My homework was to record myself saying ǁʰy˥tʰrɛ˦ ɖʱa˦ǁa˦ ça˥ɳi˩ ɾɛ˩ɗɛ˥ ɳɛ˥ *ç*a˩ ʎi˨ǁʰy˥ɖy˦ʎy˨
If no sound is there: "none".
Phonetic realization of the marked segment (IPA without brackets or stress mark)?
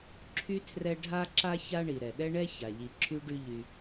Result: ç